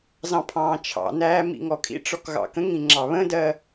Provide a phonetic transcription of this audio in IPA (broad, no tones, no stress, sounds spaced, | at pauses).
z ɑ̃ pʰ ɑ̃ː t͡ʃʰ ɑ̰ n æː m ḭ ŋ ɔ kʼ ḭ ʈ͡ʂ ɔ k ɣ ɑ̰ k ə̃ ŋ ĩ ŋ͡ǁ ɑ β ə̃ d ɜ